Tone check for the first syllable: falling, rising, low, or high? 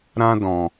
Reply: high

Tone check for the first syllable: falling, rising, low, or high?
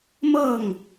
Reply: falling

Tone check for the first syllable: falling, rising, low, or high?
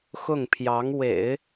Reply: falling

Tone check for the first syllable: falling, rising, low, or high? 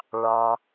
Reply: low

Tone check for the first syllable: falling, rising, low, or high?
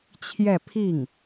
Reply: falling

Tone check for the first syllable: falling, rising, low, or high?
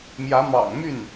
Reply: rising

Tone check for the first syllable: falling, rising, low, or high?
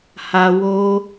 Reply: low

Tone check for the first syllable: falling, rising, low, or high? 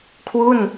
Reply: falling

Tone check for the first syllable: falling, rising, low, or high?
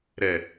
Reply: low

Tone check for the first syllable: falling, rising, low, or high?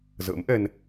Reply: rising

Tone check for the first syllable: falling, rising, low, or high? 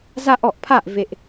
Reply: high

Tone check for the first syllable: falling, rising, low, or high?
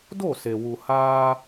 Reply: falling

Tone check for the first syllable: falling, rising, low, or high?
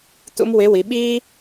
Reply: high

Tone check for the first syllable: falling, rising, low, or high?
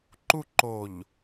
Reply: falling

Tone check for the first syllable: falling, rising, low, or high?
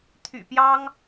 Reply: low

